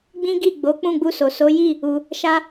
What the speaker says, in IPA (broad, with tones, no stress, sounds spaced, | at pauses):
ɡ͡b ĩ˦ ɡ i˦˨ ɡ͡b o˨˦ k͡p ũ˦˨ ɡ͡b u˧ s o˨ s o˨˦ j i˦˨ | u˧ | ʃ a˦